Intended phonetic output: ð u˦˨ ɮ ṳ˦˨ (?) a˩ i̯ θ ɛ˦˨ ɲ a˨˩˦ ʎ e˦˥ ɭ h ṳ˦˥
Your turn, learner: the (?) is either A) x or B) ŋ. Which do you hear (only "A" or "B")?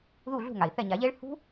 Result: B